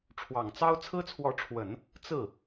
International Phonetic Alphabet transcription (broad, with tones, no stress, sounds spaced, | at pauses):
ʈ͡ʂʰ w ɑ˨˩ ŋ t͡s ɑ˥ ʊ̯ t͡sʰ ɹ̩˥ t͡sʰ w ɔ˧˥ ʈ͡ʂʰ w ə˨˩˦ n | t͡s ɹ̩˥˩